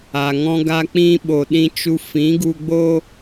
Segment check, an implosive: present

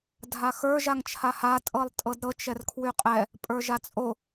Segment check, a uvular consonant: present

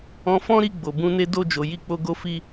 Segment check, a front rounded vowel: absent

